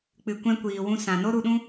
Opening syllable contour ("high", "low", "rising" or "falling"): low